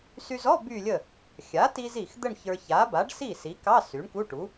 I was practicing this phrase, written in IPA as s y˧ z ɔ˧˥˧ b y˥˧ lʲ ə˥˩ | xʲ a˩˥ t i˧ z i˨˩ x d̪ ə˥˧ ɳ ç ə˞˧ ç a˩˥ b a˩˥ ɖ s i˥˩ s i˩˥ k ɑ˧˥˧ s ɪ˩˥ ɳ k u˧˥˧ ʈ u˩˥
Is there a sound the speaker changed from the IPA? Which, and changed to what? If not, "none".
ɪ˩˥ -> y˩˥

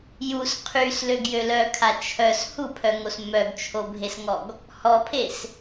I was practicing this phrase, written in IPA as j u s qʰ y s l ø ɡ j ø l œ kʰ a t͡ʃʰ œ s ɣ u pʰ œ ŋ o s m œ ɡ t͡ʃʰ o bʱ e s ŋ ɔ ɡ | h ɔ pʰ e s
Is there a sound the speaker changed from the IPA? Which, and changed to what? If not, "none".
ɣ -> h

